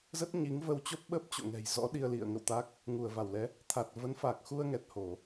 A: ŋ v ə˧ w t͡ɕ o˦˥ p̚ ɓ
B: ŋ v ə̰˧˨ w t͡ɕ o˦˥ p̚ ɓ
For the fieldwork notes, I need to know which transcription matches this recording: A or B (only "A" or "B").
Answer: A